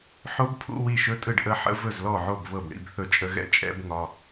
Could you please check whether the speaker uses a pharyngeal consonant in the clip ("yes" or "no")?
yes